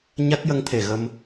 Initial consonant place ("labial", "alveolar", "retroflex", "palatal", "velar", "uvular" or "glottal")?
palatal